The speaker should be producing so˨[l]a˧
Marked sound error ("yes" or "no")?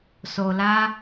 no